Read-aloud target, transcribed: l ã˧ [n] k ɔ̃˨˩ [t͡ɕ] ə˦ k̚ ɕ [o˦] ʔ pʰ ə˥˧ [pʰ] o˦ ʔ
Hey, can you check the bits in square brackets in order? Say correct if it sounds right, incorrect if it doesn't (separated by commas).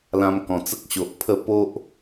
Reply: incorrect, incorrect, incorrect, incorrect